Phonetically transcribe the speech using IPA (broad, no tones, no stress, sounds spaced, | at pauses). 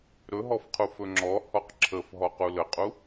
ɾ ɵ ɦ ɔ f qʰ u f ɵ ŋ͡ǁ ɔ h ɔ q ǁʰ ə f ɦ ɔ q u l ə qʼ u